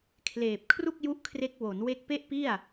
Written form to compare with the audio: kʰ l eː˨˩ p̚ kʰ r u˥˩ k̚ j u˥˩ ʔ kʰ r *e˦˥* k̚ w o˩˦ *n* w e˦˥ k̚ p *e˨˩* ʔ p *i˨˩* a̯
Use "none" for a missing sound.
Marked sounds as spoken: e˦˥, n, e˥˩, i˥˩

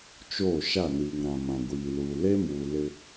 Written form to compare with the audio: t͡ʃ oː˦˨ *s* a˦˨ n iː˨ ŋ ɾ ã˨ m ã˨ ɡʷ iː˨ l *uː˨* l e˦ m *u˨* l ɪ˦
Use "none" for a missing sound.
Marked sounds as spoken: ʃ, uː˨, uː˨

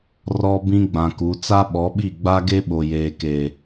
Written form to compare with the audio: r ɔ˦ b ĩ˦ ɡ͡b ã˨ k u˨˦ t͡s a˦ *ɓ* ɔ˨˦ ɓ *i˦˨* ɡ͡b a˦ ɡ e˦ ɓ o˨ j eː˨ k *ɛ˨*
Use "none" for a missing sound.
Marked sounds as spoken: ɓ, i˦˨, e˨

